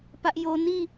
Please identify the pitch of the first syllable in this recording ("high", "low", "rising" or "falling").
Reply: high